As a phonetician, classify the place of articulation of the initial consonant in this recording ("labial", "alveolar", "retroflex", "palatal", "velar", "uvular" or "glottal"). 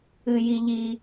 palatal